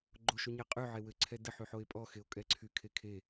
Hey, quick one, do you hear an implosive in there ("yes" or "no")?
no